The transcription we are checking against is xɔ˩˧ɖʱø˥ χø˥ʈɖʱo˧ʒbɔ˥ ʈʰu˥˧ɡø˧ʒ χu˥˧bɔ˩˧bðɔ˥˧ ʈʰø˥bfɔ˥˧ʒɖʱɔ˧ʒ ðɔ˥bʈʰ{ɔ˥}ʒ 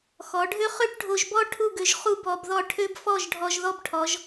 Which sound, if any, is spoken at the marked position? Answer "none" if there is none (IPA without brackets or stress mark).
ɔ˩˧